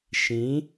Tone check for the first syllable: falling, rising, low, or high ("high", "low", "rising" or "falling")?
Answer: rising